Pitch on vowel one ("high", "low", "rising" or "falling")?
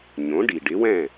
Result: rising